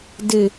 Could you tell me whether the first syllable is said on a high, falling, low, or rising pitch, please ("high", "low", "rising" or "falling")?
falling